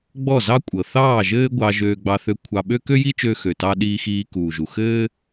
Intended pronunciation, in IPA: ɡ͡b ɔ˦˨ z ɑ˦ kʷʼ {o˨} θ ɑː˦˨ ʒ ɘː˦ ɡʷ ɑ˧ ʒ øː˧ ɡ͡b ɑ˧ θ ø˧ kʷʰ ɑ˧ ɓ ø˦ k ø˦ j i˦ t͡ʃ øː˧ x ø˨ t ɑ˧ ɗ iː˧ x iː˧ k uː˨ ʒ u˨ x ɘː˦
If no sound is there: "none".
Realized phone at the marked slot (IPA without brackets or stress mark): ɤ˨